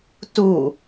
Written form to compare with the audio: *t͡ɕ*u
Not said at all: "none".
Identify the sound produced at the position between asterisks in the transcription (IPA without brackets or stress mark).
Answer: t